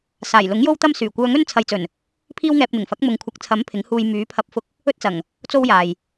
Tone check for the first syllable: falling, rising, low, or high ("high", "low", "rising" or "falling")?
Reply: low